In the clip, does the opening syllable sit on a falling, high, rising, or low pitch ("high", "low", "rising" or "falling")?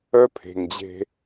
high